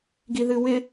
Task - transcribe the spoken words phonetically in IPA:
ɡ i ð ɨ w ɪ

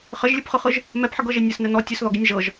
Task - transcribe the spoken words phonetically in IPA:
χ ɘ ʒ lʲ ɯ p χ ɯ χ ɯ ʒ | m ɛ p ħ ɘ ɡ ɤ ʒ e nʲ ɘ s n ɛ n ɔ tʲ ɘ s ð ɔ ɡ i nʲ ʒ ɤ ʒ

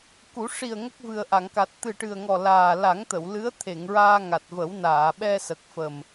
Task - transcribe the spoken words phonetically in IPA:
k u˨˩˦ ʂ i˨˩ ə̯ ŋ ə˦˥ k̚ v ɨ˨˩ ə̯ ʔ a˨˩˨ ŋ k a˨˩ t̚ t̪ ɨ˨˩ ʈ ɨ˨˩ ə̯ ŋ ɔ˨˩ l aː˨˩ l a˨˩˦ ŋ t̪ ə˨˩˨ w l ɨ˧˥ ə̯ t̪ʰ e˨˩˨ ŋ ɹ aː˧ ŋ a˨˩ t̚ v ə˨˩˦ w n aː˨˩˨ ɓ ɛ˧ s ə˨˩ k̚ f ə˨˩ m

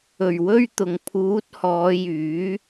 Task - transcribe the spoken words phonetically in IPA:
ɵ˨˩ ɥ w ɵ˧ ɥ t̪ ʊ˨˩ ŋ pʰ uː˨˥ t̚ h ɔː˨˧ j yː˨˥

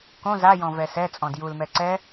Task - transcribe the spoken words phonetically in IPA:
k õ z a j ɔ̃ v ɛ s ɛ t͡sʼ ɔ̃ d j u l m ɛ ǀ ɛ

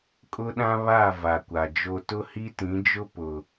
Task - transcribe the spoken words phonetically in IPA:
kʼ ʊ˦ ɗ ã˦ β a˦˨ v a˨ kʷ a˨ d͡ʒ o˦ t ʊ˦ h i˦ t ĩ˨˦ d͡ʒ ʊ˦ p ʊ˨

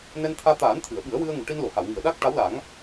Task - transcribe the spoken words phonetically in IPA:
n ɛ˧ n t̪ʰ aː˧ t̪ aː˨˩˦ n t̪ʰ ɨ˨˩˨ ə̯ ɓ ɨ˨˩˦ ə̯ w ɨ˧ ə̯ ŋ u˨˩˨ ʈ i˧ n l o˨˩˨ h a˨˩˨ w ŋ i˨˩˨ ə̯ ɗ a˦˥ k̚ ʈ a˧˥ w l a˨˩˦ ŋ

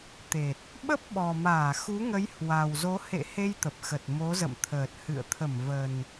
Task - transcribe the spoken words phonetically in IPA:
t̪ e˨˩ t̚ | ɓ ə˦˥ p̚ ɓ ɔ˨˩ m aː˧˩ x u˨˦ ŋ ə˨˦ j h w a˨˩ w z o˨˦ h ḛ˧˨ h e˧ j t̪ ə˨˩ p̚ x ə˨˩ t̚ m o˨˦ z ə̰˧˨ m t̪ʰ əː˨˩ t̚ h ɨ̰˧˨ ə̯ t̪ʰ ə˧˩ m v ə˨˩ n

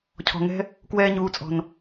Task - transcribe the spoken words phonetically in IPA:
cʰ ɔ̤˨ ŋ ɛ̤˦ | k w ɛː˧ ɲ uː˨ t͡sʼ ɔ̤˨ n

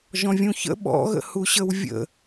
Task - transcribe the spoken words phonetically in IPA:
ʒ ɔ̃ vʲ ũ ç ə̰ ɓ ɔ̰ ɣ ə̰ h u ɕ ə w vʲ ə̰

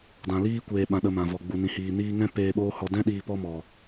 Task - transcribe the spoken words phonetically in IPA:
d ã˧ l iː˦ kʷ eː˧ ɓ ã˧ ɗ ə˧ m ã˨ v ɔ˨ ɡ͡b u˨ n ĩ˨ h iː˨ n iː˦ ŋ ɛ̃˦ p eː˧ ɓ oː˦ h ɔ˧ d ɛ̃˦ ɗ iː˧ p ɔ˦ m ɔ˨

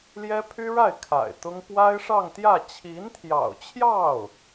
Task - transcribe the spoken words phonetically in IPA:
l j ɛ˥ pʰ y˥ ɻ a˥˩ ɪ̯ kʰ a̰˨˩ ɪ̯ t̪ ʊ˥ ŋ p w a˥ ɪ̯ ʂ ɑ˥˧ ŋ t̪ j ä˥˩ t͡ɕʰ i˧˥ n t̪ʰ j ɑ̰˨˩ ʊ̯ t͡ɕʰ j ɑ˥˩ ʊ̯

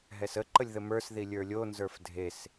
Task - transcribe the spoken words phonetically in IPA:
ɦ ɛ s ə ǃ ə lʲ ð ə m ə˞ s ð i lʲ ə˞ lʲ o n z ə˞ f dʱ e s

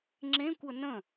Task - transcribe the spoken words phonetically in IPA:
ŋ͡ǁ ẽ kʷ ə n ə̃

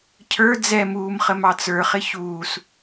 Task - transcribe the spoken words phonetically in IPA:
cʰ ə˞ d͡z ɛ m uː m χ ə m ɑ t͡s ə˞ χ ɪ ç uː s

